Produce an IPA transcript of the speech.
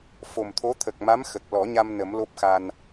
f o˨˩ m t̪ʰ o˧˥ t̪ʰ ə˨˩ k̚ m a˧˥ m x ə˨˩ k̚ l ɔ˨˩˦ ɲ a˧ m n ə˨˩˦ m l o˦˥ p̚ x a˧ n

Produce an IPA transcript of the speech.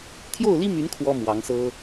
t̪ʰ j o˥˩ ʊ̯ l i˥ m y˧˥ n kʰ w ɔ˥ m w ɑ˧˥ ŋ s ɤ˥

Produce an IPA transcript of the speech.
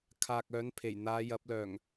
kʰ aː˨ k̚ œː˨˥ n pʰ e˨˩ j n̪ aː˨˧ j ɐ˨˥ p̚ l œː˨˩ ŋ

